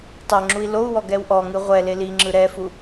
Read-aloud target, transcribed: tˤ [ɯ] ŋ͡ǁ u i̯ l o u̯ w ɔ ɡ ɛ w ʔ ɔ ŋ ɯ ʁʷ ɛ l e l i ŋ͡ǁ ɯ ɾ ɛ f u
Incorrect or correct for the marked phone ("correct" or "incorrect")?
incorrect